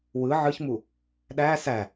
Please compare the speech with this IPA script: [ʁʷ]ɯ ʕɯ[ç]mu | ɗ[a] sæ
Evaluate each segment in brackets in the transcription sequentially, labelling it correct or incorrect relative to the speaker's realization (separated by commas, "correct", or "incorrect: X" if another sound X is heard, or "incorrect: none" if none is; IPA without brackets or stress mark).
incorrect: w, correct, incorrect: æ